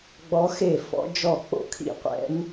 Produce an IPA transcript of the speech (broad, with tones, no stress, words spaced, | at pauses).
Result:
ɡ͡bɔ˧˥ xe˥˩fɔ̰˧˥ d͡ʒɔ˥˩k͡po̰˥˩kʰḭ˥˩qʷɛ̰˧˥n